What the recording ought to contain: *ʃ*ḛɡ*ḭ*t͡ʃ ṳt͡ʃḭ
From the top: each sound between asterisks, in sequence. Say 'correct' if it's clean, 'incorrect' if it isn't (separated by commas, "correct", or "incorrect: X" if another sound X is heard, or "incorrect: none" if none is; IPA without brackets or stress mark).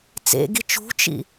incorrect: t͡s, incorrect: i